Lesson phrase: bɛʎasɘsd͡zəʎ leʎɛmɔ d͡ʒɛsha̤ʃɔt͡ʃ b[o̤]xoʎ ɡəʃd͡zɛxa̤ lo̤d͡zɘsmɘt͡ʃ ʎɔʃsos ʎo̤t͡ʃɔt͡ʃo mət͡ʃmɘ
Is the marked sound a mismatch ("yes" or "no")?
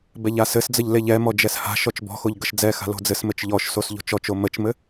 yes